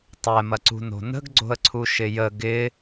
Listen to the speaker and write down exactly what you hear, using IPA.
tˤ ɛ m ɐ ǀ ṳ n o̤ n ə̤ ɡ ɡ͡ǀ o̤ ə̯ ǀʰ u ʃ ɪ j ə ɡ ɪ

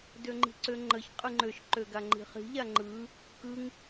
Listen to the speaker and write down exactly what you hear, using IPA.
d ø ŋ͡ǃ i̤ ǀ ø ŋ͡ǃ ə ç qʼ ɯ ŋ͡ǃ ø ʃ ǃ ø ɡ a ŋ͡ǃ i̤ χ i̤ ʎ a ŋ͡ǃ ɯ | k ɯ ŋ

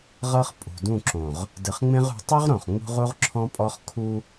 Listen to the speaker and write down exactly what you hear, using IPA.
ʁ ɤ˦ χ pʼ ṳ˨ d ũ˦˨ ǁ õ˨ ʁ | d ɯ˨ χ ŋ͡m ẽ˦ ʁ ṳ˨˦ tˤ o˦ ʁ ɾ õ˨ χ ŋ͡m ṳ˦ ʁ u˦ ʁ ǁʰ ɔ̃˦ pʼ ɔ˦ χ kʰ u˦

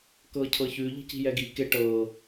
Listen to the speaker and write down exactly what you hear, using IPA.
k ɤ cʰ ɤ ç ʉ ʎ i̤ c i̤ j ɛ ɡ i k e ʈ ɤ

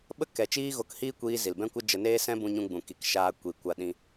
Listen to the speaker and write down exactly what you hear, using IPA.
ɓ ə˦ k ɛ˨ t͡ʃ iː˦ ɣ o˧ k h iː˦ kʷ iː˧ z i˨ l b ɛ̃˦ kʷ ə˦ d͡ʒ ə˧ n eː˦ s ɛ̃˦ b ũ˧ ɲ ũ˧ ɡ͡b ũ˨ k i˨ k ʃ aː˧ kʷ i˨ kʷ a˧ ɗ ĩ˧

